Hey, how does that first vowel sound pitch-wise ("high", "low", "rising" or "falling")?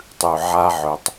low